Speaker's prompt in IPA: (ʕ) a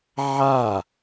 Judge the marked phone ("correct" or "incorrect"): correct